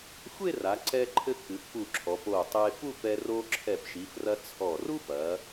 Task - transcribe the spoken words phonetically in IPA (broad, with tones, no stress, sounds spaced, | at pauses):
xʷ e˥˧ r a˩˧ ǀ ɛ˧ ǃʰ ɘ˧ k ɨ˩˧ f p u˧˩ ǁʰ ɔ˩˧ p o˧˩ tˤ e˧ f u˥˧ f ɛ˧ r o˧ ǁʰ ɛ˧˩ p ʃ i˩˧ f r ɐ˧ t͡sʰ ɔ˧˩ r u˥ f ɐ˩˧